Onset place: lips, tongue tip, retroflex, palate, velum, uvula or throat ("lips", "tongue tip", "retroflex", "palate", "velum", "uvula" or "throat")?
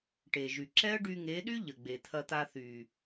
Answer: retroflex